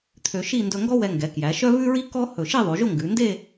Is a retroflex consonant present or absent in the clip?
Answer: absent